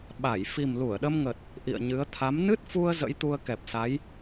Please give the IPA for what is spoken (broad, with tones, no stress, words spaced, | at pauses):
ɓa˧˩j fi˨˩mlu˧˩ə̯ɗə˧mŋə˨˩t̚ | ʔḭ˧˨ə̯ɲɨ˨˦ə̯ t̪ʰa˨˦m nɨ˦˥t̚fu˧ə̯ zə̰˧˥jt̪u˧ə̯kɛ˨˩p̚sa˨˦j